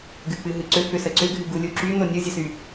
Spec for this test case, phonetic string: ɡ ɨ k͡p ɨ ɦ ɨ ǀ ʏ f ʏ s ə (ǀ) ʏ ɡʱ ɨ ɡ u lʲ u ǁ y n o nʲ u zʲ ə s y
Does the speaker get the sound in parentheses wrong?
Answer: no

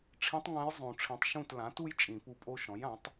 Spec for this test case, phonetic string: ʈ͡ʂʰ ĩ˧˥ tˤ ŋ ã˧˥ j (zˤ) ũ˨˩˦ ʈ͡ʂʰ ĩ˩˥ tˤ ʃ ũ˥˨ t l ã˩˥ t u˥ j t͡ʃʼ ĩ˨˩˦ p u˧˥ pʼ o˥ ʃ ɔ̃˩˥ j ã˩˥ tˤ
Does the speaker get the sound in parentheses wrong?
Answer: no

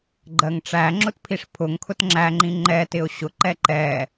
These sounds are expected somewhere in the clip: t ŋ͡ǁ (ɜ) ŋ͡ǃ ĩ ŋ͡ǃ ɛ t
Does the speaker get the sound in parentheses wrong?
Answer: yes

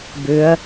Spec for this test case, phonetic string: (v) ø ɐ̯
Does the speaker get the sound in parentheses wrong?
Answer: yes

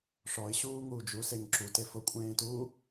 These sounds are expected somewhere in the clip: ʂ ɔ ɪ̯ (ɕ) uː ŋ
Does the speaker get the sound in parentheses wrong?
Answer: no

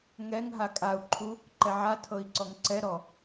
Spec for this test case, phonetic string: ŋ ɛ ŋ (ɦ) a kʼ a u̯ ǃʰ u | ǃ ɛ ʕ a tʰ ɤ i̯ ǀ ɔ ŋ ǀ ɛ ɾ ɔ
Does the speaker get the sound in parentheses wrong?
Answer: no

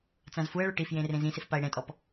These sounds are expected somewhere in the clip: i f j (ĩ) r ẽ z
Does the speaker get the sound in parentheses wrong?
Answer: yes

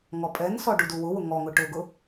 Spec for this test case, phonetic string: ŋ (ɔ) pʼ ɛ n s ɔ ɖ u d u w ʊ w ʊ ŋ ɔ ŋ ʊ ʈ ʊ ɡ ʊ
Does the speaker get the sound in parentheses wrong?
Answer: no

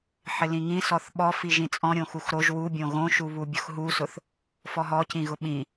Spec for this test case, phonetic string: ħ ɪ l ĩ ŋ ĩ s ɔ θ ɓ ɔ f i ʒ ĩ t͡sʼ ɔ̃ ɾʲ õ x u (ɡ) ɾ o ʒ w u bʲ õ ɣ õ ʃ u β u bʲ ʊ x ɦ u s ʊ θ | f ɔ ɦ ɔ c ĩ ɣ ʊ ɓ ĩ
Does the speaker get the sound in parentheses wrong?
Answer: yes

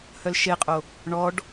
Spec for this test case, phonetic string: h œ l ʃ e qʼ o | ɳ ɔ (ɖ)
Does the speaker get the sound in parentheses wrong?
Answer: no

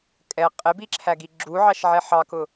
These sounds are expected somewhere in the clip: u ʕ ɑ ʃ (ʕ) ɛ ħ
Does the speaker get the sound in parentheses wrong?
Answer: no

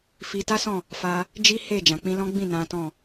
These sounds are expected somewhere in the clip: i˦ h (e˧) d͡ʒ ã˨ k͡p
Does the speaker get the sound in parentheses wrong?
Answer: yes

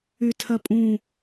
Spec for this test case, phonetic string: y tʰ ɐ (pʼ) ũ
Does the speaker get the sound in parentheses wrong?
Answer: no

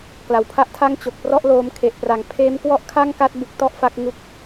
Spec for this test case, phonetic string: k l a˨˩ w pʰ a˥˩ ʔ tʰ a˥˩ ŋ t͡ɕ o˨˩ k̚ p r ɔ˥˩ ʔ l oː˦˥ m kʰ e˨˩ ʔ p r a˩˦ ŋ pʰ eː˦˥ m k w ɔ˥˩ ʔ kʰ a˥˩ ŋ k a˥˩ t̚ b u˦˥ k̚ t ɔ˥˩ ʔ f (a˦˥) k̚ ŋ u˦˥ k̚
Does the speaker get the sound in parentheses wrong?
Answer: no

